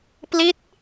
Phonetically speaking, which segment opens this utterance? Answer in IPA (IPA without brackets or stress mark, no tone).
p